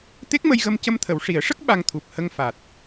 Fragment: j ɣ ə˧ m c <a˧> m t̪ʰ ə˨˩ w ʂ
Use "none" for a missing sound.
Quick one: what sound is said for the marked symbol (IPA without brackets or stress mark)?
ə˧